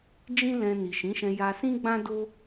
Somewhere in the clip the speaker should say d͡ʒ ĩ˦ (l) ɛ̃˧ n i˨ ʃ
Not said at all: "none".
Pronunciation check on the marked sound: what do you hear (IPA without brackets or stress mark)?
l